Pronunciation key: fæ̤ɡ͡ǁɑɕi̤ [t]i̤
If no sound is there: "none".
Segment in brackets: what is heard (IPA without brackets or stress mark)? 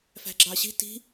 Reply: t